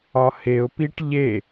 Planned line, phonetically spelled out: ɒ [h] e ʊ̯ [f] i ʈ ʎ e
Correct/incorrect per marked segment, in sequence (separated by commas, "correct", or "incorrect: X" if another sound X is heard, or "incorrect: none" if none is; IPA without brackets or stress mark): correct, incorrect: p